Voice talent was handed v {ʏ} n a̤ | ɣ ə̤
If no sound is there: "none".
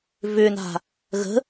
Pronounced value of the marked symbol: ʏ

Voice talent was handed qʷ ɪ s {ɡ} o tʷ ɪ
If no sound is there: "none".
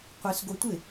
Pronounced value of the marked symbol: ɡ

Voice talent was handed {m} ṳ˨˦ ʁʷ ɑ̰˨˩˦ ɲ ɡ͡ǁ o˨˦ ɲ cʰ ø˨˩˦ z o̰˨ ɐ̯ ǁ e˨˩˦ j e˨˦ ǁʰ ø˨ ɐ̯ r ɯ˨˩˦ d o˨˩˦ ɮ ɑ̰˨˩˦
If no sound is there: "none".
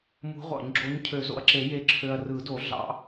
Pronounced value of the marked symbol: m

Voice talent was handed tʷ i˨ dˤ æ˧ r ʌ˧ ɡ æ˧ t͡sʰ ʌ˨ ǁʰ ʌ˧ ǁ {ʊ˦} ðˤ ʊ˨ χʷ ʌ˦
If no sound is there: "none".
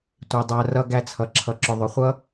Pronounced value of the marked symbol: ʊ˧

